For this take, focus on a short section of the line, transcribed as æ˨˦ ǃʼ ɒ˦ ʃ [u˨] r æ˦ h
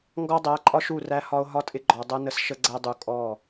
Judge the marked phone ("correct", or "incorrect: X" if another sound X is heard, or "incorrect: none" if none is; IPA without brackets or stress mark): incorrect: u˦˨